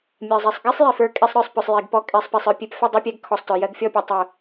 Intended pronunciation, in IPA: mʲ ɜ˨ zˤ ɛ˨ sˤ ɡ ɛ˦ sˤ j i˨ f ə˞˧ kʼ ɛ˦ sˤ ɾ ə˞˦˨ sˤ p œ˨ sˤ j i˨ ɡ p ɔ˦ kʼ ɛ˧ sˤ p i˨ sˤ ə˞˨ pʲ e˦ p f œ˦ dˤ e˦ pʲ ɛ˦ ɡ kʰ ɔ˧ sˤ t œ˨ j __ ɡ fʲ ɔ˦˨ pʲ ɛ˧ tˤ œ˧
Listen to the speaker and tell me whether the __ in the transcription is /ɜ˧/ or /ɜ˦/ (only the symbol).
ɜ˧